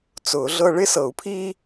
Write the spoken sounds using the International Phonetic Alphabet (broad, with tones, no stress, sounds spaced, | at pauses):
t͡s ʊː˨˩˦ ɮ ɤ˦ ɭ ɪ˦ s ɤ˨˩˦ u̯ pʰ iː˦